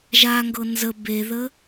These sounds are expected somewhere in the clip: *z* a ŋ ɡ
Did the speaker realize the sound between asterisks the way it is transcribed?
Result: no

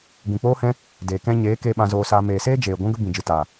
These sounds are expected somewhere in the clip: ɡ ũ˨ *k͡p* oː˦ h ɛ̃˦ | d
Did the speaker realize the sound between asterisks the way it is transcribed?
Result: yes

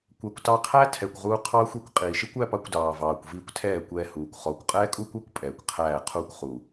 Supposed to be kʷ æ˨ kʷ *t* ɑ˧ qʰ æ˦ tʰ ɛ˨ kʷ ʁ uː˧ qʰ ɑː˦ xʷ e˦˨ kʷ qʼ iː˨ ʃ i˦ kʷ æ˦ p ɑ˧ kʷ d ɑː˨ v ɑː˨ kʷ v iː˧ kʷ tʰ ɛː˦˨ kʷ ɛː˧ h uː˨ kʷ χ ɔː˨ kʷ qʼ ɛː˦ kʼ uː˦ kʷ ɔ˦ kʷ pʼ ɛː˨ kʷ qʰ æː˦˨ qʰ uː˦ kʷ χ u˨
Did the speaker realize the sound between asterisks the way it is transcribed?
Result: yes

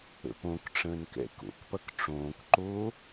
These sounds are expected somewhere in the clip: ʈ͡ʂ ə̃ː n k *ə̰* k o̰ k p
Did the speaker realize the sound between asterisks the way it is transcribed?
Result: no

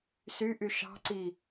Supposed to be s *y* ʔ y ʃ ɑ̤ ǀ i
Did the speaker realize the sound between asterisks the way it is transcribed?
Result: yes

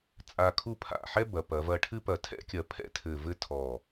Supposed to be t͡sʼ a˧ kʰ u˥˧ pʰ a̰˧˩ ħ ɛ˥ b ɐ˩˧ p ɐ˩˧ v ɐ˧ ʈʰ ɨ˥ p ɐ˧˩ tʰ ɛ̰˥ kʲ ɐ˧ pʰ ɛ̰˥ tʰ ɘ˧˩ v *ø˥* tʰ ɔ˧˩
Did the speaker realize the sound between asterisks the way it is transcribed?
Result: no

